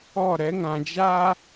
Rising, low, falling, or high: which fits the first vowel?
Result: falling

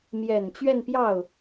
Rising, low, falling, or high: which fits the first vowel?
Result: low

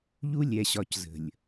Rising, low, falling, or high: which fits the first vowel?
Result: high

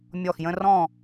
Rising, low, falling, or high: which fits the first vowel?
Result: falling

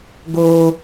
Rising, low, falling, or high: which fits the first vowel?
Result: high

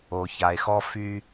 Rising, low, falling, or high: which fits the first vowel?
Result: low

